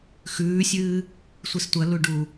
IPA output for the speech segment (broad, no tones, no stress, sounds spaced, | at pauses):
x ʉː sʲ ɨː | sʷ i s tʷ ɐ l u ɖ u